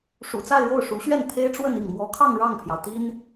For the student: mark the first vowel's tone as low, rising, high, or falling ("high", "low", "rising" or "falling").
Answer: low